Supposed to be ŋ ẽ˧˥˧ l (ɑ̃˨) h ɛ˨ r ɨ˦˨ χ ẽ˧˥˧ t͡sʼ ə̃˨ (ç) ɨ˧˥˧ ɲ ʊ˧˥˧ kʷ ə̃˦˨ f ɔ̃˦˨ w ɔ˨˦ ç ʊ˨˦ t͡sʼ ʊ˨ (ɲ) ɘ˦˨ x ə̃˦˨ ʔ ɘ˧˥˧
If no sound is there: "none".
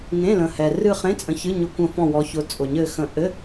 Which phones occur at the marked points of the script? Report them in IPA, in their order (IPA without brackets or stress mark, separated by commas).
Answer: ə̃˨, ç, ɲ